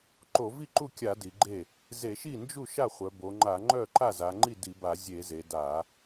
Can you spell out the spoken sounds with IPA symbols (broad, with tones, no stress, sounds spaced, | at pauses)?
ǃ o˧˩˧ v i˥˩ ǃ u˥˩ kʲ a˧˩˧ d i˩˧ ɡ͡ǃ e˥˩ | z e˧˩˧ ʃ i˥˩ n d͡ʒ u˥˩ ʃ a˥˩ χʷ œ˩˧ b o˩˧ ŋ͡ǃ a˧˩˧ ŋ͡ǃ œ˥˩ ǃ a˥˩ z a˩˧ ŋ͡ǃ i˥˩ d i˧˩˧ b a˧˩˧ zʲ e˧˩˧ z e˩˧ d a˧˩˧